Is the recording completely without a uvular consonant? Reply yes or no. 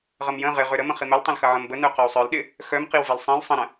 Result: no